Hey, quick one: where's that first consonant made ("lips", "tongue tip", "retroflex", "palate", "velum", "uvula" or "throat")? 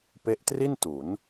lips